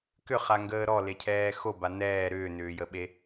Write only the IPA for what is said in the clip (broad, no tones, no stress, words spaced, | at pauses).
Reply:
kʏχaŋɡəː ɾɔlecʰɛː xoba nɛː ɾʏːnʏːjəɓe